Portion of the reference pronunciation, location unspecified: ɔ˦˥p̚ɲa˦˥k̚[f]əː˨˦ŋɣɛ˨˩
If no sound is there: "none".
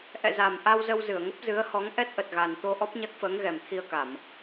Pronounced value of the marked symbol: f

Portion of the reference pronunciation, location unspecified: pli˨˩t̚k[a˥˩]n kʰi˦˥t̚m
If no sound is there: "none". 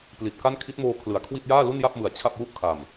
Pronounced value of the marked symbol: a˥˩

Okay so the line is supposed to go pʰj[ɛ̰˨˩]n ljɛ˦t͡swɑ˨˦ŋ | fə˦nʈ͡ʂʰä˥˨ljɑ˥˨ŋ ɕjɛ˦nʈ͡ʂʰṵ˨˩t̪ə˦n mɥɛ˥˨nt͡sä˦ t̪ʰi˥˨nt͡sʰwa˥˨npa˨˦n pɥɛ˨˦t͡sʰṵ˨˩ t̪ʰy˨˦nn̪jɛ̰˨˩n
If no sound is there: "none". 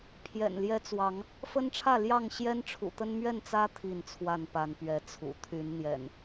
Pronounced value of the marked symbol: ɛ̰˨˩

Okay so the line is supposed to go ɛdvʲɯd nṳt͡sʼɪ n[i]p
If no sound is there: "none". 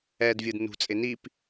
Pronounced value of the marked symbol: i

